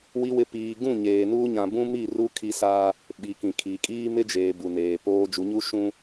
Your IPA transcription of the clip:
w i˨ w ɪ˨ p iː˨ ɡ ũ˦˨ ɲ eː˨ n uː˦ ɲ ã˨ b ũ˦ m i˦˨ r u˦ kʰ i˦ s aː˦ | ɓ i˨ k ĩ˨ kʰ i˨ kʼ iː˦ m ɪ˦ d͡ʒ eː˨ b u˨ n eː˨ p oː˦ d͡ʒ u˨˦ ɲ u˦ ʃ ũ˦

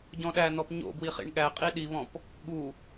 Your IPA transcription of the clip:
ɟ ɔ̃ ɗ æ n̪ ɔ p ɲ o̰ b w i χ ḭ ɳ ɠ æ qʼ i ɗ i β ɔ̃ p | ɠ u

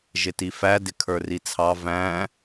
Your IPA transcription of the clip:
ʒ ɪ t i f æ d ɪ kʰ ə˞ r i t͡sʰ ɑ v æ̃

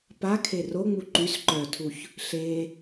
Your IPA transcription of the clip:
p a kʰ e r o ŋ͡m u ǃ y s ǃ œ tʰ u ç | ɬ e

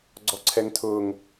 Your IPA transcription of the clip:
ɡ͡ǀ ɔ ǀʰ ɛ ŋ tʰ ʊː ŋ

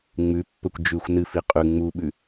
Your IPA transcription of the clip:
ŋ͡m ʉ pː ɵ kʷ d͡ʒ ʉ xʷ n ɨ f i qʼ ʉ ŋ͡m u ɓ ʉ

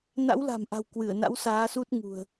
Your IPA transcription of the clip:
n a̰˧˥ w l a̤˨˩ m ʔ a̤˨˩ w k w ɨ˧˩ ə̯ n a̰˧˥ w s aː˨˦ s u˦˥ t̚ ŋ ṳ˨˩ ə̯

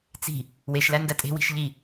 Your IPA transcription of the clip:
t͡s i̤ | w e ʃ l æ n d æ tʼ e̤ w i̤ ʃ ʎ i

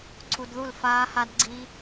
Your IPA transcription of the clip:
ǀʰ u˧ d ð u˥˩ l f aː˦˥ h a˦˥ d ɡ͡ǀ i˦˥

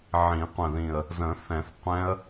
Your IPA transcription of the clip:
ʕ ĩ˨˩˦ qʷ ə̃˨˩ ð ĩ˨˩ ə̯ | z ə̃˨˩˦ θ ɛ̃˨˩˦ θ qʷ ɛ̃˦˥ ə̯

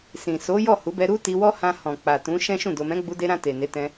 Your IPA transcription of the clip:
s ĩ˨ s o˨˦ j ɔ˦˨ h u˨˦ b ɛ˧ ɾ u˦ t i˧ w ɔ˦ h ã˧ h ɔ̃˨ k͡p a˨ t ũ˨˦ ʃ ɛ̃˦ ʃ ũ˦˨ d o˨ m ɛ̃˨˦ ɡ͡b u˧ d e˧ ɾ ã˧ t e˨ n e˨˦ t ɛ̃˧

